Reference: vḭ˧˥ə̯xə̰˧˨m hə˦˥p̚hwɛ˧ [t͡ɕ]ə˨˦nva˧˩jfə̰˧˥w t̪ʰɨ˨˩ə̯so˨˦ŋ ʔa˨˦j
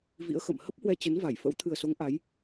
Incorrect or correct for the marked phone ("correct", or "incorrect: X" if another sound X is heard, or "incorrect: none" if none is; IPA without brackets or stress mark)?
correct